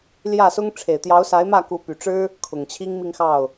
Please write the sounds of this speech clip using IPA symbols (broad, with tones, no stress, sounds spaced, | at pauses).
l j ä˥˩ s ʊ˥ ŋ ʈ͡ʂʰ e˨˩ ɪ̯ t̪ j ɑ˧˥ ʊ̯ s a˧˥ ɪ̯ m ä˥˩ k u˧˥ p y˨˩ ʈ͡ʂ ɻ̩˥ | kʰ ʊ˨˩ ŋ t͡ɕʰ i˥ ŋ m i˥˧ ŋ x ɑ˥˩ ʊ̯